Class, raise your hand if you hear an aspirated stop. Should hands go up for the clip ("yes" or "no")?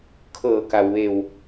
yes